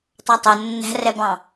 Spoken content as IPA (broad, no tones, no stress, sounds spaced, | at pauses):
tˤ ɑ tˤ o nː æ̤ r ɛ b ɑ̃